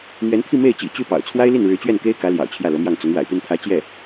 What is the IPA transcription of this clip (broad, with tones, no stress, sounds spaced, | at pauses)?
n̪ ɥ ɛ˧˥ n t̪ʰ i˥˧ m e˥˩ ɪ̯ t͡ɕ ḭ˨˩ t͡ɕ y˥˩ p ɑ̰˨˩ ʊ̯ t͡sʰ w a˥ ɪ̯ l i˥˩ n ɻ ɻ̩˧˥ t͡ɕ ɥ ɛ˥˩ n k e˥ ɪ̯ k ä˧˥ l j ɑ̰˨˩ ʊ̯ t͡ɕʰ j ä˥˩ l ɤ˧˥ m j ɑ˥˩ ŋ t͡s ʊ˧˥ ŋ w a̰˨˩ ɪ̯ p i˥˩ n t̪ʰ ä˧˥ t͡ɕ j ɛ˥˩